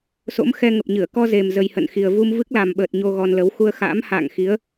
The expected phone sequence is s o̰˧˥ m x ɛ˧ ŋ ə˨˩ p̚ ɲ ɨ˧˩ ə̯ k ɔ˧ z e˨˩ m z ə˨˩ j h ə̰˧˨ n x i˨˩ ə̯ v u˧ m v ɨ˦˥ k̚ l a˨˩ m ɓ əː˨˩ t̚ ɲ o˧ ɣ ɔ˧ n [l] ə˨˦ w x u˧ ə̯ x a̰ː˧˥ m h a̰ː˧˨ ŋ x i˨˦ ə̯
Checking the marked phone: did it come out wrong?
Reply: no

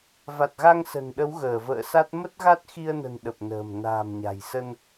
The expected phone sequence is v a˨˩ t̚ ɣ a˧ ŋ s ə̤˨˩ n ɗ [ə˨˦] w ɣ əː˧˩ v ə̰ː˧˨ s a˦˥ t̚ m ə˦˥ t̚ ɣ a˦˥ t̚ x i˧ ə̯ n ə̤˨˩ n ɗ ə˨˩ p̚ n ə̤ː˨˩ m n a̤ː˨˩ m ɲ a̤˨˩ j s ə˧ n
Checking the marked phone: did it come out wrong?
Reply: no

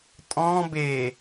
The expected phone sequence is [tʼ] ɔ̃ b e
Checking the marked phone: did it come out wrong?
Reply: no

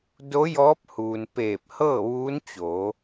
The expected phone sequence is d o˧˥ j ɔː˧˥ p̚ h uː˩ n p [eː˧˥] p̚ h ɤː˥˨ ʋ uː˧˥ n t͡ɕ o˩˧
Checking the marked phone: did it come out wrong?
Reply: yes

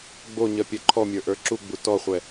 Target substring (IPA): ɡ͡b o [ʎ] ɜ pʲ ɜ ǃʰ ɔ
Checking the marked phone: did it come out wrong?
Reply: yes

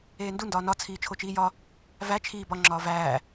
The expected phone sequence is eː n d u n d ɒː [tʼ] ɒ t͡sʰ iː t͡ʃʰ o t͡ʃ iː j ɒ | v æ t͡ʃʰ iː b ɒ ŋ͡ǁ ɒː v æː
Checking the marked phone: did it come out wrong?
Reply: yes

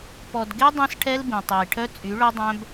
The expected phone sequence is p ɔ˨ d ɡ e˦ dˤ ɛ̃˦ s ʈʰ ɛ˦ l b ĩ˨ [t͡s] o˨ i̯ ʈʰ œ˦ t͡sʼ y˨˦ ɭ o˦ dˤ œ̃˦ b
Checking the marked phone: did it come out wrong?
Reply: yes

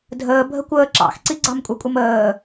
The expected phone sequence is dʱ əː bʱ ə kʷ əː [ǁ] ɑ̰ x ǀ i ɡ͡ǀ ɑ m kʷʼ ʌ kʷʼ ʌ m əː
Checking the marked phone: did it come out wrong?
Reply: no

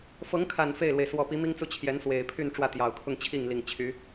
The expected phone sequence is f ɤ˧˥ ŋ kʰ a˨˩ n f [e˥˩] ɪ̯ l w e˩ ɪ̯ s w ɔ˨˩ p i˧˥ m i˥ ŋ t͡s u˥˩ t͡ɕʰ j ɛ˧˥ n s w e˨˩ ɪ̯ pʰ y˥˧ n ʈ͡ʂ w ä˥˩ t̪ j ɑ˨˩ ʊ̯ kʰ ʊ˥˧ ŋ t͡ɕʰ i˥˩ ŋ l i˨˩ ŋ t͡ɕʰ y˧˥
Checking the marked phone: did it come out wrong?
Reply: no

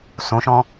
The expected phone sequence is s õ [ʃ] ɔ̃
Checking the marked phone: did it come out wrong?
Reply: no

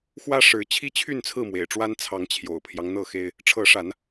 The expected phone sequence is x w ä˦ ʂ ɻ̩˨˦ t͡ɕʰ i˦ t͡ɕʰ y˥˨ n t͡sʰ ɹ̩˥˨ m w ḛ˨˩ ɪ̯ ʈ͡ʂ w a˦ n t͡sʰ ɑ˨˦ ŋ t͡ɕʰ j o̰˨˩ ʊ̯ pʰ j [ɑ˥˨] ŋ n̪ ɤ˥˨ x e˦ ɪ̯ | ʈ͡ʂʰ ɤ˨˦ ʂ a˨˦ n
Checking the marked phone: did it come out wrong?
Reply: yes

